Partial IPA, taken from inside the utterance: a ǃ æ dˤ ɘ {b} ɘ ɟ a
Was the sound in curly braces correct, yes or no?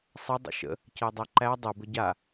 yes